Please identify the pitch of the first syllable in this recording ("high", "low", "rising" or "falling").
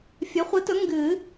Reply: rising